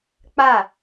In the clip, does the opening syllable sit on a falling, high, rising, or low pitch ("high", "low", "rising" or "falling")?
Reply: falling